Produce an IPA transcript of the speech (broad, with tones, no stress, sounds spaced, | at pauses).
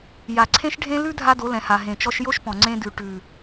j a˨ ǀʰ ẽ˦ ʃ ɖʱ ẽ˦ l ʉ˦ dʱ a˦ d o˨˦ l ɛ̃˨ h a˨ ɦ ẽ˨ t͡ʃ ɔ˧ ʃ j o˦ ʃ p ɔ̃˨ ŋ͡ǀ ẽ˧ d ʉ˨ ʈ ʉ˨